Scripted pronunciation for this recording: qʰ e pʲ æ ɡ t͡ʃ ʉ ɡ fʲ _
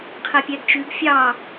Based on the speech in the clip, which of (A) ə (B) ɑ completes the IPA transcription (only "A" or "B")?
B